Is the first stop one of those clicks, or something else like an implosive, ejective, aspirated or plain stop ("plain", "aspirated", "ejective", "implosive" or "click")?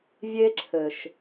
click